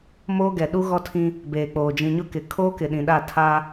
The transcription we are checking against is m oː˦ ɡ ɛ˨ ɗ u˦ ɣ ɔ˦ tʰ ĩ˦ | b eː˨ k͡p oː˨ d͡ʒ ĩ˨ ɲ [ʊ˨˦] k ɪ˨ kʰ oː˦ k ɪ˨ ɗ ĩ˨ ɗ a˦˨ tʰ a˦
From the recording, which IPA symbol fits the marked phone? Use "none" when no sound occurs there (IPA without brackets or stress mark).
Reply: ʊ˦